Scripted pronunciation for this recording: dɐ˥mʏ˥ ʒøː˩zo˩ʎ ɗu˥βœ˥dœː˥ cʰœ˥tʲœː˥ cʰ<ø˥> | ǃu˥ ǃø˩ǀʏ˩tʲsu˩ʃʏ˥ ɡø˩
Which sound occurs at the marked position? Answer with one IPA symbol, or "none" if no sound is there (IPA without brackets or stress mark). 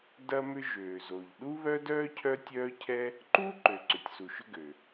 ɛ˥